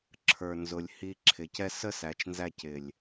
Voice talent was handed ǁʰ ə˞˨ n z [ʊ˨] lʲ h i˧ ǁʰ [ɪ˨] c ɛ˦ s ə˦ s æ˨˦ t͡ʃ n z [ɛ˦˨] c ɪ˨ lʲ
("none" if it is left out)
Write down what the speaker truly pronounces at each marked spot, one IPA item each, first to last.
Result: ʊ˨, ɪ˨, æ˦˨

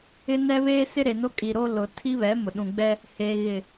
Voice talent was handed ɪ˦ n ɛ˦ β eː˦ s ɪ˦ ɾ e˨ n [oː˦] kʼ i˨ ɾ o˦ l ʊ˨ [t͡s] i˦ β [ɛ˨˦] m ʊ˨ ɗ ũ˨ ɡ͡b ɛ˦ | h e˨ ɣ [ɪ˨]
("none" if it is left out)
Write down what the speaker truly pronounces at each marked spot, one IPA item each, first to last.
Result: o˦, tʰ, ɛ˨˦, ɪ˨

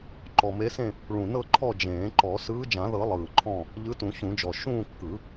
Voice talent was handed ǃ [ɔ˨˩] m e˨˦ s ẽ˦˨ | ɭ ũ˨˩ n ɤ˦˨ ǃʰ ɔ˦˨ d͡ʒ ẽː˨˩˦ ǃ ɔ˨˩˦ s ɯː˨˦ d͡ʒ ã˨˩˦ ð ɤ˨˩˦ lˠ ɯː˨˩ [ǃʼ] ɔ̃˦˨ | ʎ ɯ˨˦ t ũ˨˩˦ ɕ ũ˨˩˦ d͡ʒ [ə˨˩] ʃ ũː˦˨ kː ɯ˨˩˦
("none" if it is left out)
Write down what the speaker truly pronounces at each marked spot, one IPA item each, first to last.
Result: ɔ˨˩, ǃʰ, ɔ˨˩

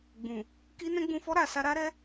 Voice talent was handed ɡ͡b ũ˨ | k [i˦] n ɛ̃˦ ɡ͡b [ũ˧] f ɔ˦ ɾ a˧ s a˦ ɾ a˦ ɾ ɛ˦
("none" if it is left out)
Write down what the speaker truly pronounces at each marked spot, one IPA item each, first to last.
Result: i˦, ũ˧

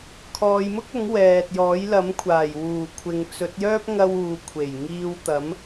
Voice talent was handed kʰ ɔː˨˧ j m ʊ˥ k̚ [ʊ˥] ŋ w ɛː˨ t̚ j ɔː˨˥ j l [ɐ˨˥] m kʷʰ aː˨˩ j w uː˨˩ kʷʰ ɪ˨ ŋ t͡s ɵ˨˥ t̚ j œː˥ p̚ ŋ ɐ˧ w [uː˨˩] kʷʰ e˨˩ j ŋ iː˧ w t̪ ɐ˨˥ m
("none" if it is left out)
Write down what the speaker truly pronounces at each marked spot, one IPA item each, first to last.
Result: ʊ˨˥, ɐ˨˥, uː˨

